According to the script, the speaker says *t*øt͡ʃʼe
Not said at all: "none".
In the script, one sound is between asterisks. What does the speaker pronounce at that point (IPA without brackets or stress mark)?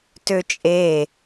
t